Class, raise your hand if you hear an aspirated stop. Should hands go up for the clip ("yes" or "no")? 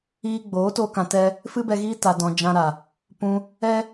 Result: no